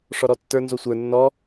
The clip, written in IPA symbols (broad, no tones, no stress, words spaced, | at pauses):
ʂɔɾɔtːə˞ nzosʷə˞ nːɔ